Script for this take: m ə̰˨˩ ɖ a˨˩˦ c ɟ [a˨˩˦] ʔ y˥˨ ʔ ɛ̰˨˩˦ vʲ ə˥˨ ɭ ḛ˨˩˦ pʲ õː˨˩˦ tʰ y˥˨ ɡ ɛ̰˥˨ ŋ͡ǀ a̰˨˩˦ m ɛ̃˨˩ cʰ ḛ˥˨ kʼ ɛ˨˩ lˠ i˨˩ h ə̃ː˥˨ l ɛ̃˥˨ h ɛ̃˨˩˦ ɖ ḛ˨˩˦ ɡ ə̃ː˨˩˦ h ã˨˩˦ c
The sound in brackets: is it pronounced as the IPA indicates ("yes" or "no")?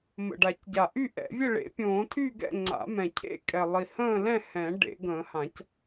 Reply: no